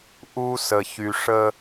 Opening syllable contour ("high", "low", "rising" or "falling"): high